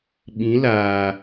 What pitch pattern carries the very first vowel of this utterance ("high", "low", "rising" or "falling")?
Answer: rising